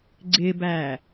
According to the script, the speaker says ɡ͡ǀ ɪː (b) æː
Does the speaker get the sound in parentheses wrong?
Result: no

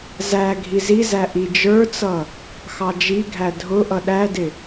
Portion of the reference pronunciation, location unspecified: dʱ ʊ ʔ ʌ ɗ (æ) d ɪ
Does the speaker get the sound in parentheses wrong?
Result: no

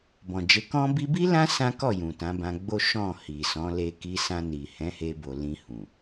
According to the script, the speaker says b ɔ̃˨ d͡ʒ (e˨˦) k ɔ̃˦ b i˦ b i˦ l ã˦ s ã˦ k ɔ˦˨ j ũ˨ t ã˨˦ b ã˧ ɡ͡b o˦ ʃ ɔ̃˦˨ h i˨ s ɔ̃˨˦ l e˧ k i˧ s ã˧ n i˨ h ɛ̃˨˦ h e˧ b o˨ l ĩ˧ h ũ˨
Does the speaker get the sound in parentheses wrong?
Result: no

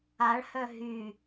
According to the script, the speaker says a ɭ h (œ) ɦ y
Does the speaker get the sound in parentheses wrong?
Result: no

